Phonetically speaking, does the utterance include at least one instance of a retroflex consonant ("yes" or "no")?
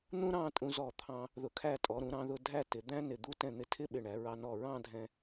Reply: yes